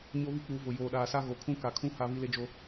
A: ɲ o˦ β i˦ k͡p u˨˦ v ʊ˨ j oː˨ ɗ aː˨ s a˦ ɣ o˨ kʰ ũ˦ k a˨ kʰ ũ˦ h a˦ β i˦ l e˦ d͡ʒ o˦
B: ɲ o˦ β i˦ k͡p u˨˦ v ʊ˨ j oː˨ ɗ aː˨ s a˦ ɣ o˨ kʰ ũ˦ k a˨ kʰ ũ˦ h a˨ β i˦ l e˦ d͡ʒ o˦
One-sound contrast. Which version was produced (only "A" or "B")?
A